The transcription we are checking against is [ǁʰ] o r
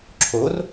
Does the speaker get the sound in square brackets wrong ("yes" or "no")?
no